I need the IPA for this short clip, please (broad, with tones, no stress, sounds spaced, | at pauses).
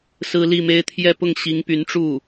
s ɹ̩˥ l i˥˩ m e˥ ɪ̯ t̪ʰ j ɛ˥˧ p ʊ˥˩ ŋ ɕ i˧˥ ŋ p y˧˥ n ʈ͡ʂ u˥˩